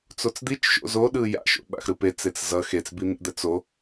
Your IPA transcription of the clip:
t͡s o t͡s d̪ i t͡ʃ ʃ o̰ z o ɗ ɯ j a̰ ʃ o̰ ɓ a̰ x ɾ ɯ p e t͡s e t͡s z ʌ x e t͡s b i n̪ ḭ d̪ ɛ t͡s o

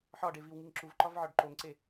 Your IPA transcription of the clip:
ħ ɒ ɖ e v i w ŋ i ŋ ǁ u v ǃ ɒ v ʕ ɒ ɖ ǃ o ŋ ǀ e

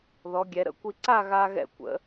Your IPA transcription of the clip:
ð ɔ˩˧ ɡʲ ɛ˩˧ ɾ ə̰˥ kʷ i˧ ǀ a˥˧ ɣ a˧ ɣ ɛ̰˧˩ kʷ ə̰˩˧

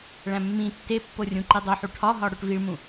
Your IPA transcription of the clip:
ɭ æ̃ mː ĩ tː e pː o rʲ ũ ǃ i dˤ o ħ u ʈʰ ɒ ɦ ɒ ɽ o ʈ v i ɭ m ũ

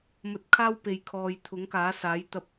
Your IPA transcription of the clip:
m ɵ˧ t̚ kʰ aː˥ w p e˨ j kʰ ɔː˨ j t̪ʰ ʊ˨˥ ŋ k aː˨˥ s aː˨˥ j t̪ ɐ˧ p̚

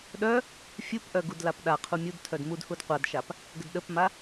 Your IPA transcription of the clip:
ɗ œ | fʲ u p ʔ œ ɡ u d l a p ɗ a qʰ u mʲ u d tʰ œ d m u d h u d qʷ a d ʃ a p | ɡ ə d ɗ ə p m a

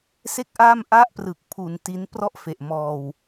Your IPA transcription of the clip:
s e˥˩ k̚ ʔ aː˥˩ m ʔ a˥˩ ʔ p r ɯ˨˩ k̚ pʰ u˧ n t i˦˥ n p r ɔ˥˩ ʔ f e˨˩ ʔ m ɔː˧ w

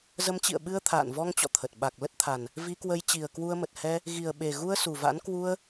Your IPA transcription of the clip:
z ə˨˦ m t͡ɕ ḭ˧˨ ə̯ ɓ ɨ˧ ə̯ t̪ʰ a̰ː˧˨ n v ɔ˧ ŋ t͡ɕ ɔ̰˧˨ t̪ʰ ə˨˩ t̚ ɓ a˨˩ k̚ l ə˦˥ t̚ t̪ʰ a˨˩ n | v i˧ k w ə˨˦ j t͡ɕ i˨˩ ə̯ k w u˧ ə̯ m ə˨˩ t̚ h ɛ˧ | ɣ i˨˩ ə̯ ɓ e˨˩ ɣ u˧ ə̯ s u˨˩ v a̰˧˥ n k w u˧ ə̯

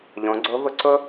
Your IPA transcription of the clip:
ʎ õ˩˧ ɡ͡ǀ o˧˥ v ʊ˧ ǀ ʊ˥

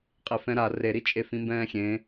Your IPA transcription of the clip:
qʼ e f ɛ̃ ɾ a r e ɾ i t͡ʃʼ e f ĩ m b ɛ̃ː xʲ ẽ

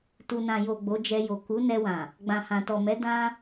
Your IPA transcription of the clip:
t u˨ n ã˨ j o˨ ɡ͡b o˨˦ d͡ʒ ɛ˧ j o˨ k u˨˦ n ɛ˧ w ã˨ | ɡ͡b ã˨ h ã˨ t ɔ˨ m ɛ˨˦ d ã˦

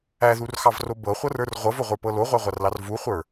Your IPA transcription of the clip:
æ ð u r x ɑ v r o b ɤ χʷ ɤ r ə˞ r ʁʷ ɤ v o ʁʷ ə˞ p ɤ l o ʁʷ æ ʁʷ a r l ɑ r v u χʷ ə˞

